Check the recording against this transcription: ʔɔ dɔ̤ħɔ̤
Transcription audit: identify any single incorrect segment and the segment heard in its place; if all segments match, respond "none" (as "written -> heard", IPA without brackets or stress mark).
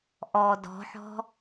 none